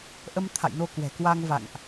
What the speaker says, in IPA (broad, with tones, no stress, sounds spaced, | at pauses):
ʔ ə˧ m t̪ʰ a̰˧˨ j n o˧ k w ɛ̤˨˩ k w a˧ ŋ v a̰˧˨ ŋ ʔ